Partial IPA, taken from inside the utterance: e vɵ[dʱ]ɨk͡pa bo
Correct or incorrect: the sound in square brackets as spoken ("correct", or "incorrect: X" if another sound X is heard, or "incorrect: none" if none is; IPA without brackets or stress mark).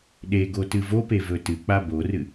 incorrect: t